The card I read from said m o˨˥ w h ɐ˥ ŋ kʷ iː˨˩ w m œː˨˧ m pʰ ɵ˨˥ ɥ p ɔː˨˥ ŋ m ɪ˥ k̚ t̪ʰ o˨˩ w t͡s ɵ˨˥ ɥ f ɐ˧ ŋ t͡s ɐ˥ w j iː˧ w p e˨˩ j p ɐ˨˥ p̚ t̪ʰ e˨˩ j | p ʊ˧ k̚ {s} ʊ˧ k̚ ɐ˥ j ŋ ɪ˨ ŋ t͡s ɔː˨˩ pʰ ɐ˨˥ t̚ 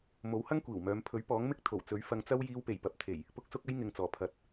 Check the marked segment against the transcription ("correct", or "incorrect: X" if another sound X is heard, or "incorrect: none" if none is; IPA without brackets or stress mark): correct